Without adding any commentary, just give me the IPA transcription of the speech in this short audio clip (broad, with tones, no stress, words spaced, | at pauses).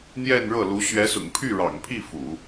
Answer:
n̪jɛ˥˧nɻɤ˥˩lu˧˥ ɕɥɛ˧˥sʊ̰˨˩ŋpʰy˥˩ ɻɑ̰˨˩ŋpʰi˥˩ fṵ˨˩˦